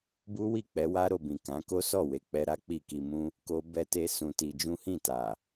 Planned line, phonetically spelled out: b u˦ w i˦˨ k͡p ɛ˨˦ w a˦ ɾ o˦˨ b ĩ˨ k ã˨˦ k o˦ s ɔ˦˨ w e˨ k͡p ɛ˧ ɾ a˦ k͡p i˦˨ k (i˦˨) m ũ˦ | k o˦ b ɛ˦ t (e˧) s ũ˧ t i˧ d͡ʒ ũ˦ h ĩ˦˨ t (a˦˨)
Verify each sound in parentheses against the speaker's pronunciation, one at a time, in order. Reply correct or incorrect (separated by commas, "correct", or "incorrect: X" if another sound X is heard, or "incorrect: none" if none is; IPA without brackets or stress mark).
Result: incorrect: i˧, incorrect: e˦, incorrect: a˨